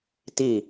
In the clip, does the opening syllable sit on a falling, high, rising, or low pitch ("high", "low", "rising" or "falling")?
falling